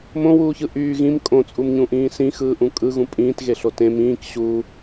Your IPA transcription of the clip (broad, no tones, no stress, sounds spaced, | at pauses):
m õ w uː ç ɯ ʔ yː ɣ ĩ m kʼ õ t͡sʼ u m ɲ ũ ʔ ĩː s ĩ x ɯː ʔ ũ kʼ ɯ ɣ ũ pʼ ĩː t ɣ e ɬ o t ẽ m ĩː k ɕ u